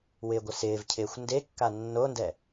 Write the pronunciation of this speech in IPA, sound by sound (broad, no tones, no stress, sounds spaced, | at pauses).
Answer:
w ɪː ɡʷ ɪ s ɪː v cʰ ɪː xʷ n d e kː a nː o n d ɛ